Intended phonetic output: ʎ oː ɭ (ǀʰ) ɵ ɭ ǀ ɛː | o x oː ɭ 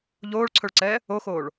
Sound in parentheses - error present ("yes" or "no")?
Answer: no